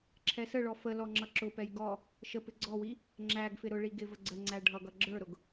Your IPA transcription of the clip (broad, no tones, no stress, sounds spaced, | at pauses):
ǁʰ ɛ s ə ɭ ɔ f ə l ɔ ŋ͡ǁ ʌ ǁ ʊ p ɛ j ɡ ɔ | ʃ ə p ɪ ɡ͡ǀ ɔ w i | ŋ͡ǁ æ ɡ f ɪ ɾ ʊ ɭ i ɡ ɪ v ə ɡ͡ǀ ə ŋ͡ǀ æ ɖʱ ʌ ɡ ʌ ɡ͡ǁ ə˞ ɾ ʊ ɡ